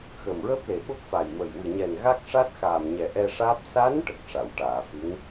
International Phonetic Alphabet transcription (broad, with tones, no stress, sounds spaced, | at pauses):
x ə˨˩ m ɹ əː˦˥ p̚ l e˨˩ ɓ o˦˥ k̚ f a˨˩ j m ə˨˩ j w ɨ˨˩ ɲ ɛ˨˩ n ɣ a˦˥ k̚ ʂ a˦˥ t̚ x aː˨˩ m ɲ ɛ˨˩ ʔ ɛ˧ ʂ aː˦˥ p̚ s a˧˥ n ʈ ə˨˩ k̚ ʂ a˨˩˨ w ʈ aː˨˩˨ f ɨ˧˥ ŋ